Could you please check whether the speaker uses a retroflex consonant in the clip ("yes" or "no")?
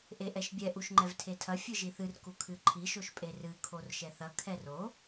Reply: no